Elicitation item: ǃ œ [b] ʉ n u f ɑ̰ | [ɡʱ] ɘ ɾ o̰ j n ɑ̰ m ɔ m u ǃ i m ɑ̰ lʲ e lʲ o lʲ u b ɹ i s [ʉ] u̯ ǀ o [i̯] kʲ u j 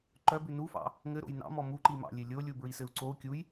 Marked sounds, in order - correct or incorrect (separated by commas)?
correct, incorrect, incorrect, incorrect